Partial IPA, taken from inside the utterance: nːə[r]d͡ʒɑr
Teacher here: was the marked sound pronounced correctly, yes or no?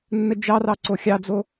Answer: no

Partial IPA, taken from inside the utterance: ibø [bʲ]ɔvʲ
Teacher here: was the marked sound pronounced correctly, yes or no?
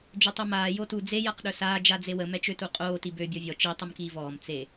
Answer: yes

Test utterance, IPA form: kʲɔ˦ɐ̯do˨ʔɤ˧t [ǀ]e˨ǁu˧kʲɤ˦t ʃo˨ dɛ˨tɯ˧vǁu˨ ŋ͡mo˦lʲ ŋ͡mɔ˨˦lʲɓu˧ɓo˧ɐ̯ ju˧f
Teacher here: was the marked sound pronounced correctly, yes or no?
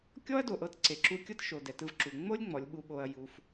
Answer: yes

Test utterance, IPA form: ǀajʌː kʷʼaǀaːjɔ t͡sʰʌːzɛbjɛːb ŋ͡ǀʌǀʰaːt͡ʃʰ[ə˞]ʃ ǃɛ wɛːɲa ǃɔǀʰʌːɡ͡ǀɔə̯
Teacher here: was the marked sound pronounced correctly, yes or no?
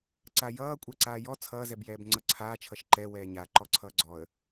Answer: no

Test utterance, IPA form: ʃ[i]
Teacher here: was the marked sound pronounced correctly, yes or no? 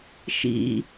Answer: no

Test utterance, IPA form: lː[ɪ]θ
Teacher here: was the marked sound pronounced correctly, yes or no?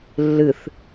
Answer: no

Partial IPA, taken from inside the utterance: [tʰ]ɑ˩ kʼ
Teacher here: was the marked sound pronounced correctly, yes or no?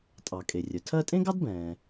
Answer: no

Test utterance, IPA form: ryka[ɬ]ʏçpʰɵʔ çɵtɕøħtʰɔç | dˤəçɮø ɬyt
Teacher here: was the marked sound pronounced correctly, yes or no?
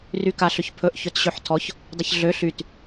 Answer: yes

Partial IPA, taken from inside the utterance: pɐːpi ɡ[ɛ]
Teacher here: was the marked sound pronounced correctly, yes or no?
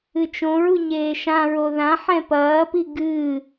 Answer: no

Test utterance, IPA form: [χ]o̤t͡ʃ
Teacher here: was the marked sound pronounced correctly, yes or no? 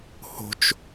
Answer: no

